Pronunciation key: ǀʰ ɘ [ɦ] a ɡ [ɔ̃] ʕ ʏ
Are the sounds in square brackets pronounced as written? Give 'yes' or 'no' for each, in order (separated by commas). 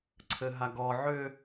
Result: yes, no